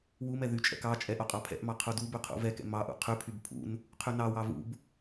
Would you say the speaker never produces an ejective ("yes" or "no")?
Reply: no